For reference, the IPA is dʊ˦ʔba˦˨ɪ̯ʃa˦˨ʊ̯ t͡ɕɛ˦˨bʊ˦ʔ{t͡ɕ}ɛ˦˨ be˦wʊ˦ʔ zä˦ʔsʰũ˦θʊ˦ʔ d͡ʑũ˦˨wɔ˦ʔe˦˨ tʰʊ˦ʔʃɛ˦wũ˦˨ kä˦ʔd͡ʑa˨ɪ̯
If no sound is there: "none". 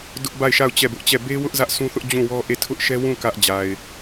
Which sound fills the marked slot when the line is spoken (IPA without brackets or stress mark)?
t͡ɕ